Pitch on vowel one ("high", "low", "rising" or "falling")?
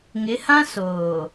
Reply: rising